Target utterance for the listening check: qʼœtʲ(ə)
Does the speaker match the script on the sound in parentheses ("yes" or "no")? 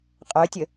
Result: yes